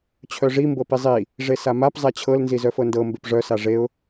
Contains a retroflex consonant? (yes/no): yes